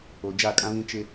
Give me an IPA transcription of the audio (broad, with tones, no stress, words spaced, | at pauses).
o˨d͡ʒa˦˨kʼã˦βĩ˦ t͡ʃɪ˦